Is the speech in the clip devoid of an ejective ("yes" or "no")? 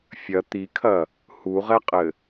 no